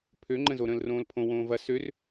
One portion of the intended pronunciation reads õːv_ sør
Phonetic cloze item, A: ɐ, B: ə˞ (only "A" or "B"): A